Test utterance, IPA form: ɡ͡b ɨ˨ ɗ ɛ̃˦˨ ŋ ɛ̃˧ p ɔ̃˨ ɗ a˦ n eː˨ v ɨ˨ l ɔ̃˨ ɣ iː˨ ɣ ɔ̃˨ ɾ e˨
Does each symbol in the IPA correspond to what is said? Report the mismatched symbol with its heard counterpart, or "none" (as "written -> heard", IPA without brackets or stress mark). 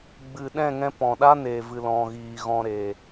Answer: none